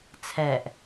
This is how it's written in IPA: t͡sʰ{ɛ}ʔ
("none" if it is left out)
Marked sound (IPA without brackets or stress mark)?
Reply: ɛ